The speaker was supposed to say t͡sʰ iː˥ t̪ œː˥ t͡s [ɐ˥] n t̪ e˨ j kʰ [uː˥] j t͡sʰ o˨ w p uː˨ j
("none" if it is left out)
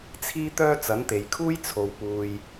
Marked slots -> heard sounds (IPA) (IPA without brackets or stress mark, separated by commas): ɐ˨˥, uː˥